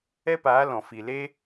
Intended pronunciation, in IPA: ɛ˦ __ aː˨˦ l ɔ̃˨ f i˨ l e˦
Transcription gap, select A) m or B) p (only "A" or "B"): B